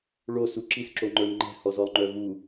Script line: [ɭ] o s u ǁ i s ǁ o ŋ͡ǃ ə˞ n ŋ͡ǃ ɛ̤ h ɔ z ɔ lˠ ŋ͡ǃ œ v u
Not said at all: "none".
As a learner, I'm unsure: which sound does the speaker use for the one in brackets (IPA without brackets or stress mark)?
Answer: ɭ